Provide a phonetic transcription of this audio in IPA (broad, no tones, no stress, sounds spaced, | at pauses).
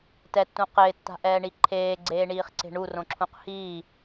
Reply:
t ɛ tː ũ q ɪː tː a̤ ʔ ɛː ɳ i ǃʰ eː ɡ͡ǀ eː ɳ iː χ ǀ e̤ ɳ u r õ ǁʰ ũ q h iː